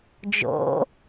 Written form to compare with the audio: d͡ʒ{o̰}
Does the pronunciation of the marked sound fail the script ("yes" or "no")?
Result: no